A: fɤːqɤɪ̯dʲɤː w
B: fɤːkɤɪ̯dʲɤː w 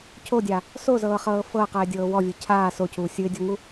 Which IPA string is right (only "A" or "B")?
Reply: A